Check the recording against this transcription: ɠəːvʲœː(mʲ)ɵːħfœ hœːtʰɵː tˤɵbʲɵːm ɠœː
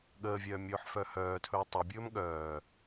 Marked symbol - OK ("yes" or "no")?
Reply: yes